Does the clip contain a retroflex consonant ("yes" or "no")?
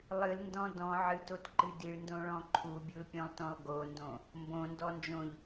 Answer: yes